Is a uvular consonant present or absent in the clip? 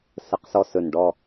present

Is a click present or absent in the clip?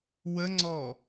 present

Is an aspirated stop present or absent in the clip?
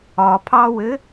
present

